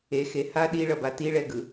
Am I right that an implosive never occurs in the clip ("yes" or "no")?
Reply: no